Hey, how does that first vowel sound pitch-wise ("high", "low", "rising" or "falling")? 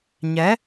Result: rising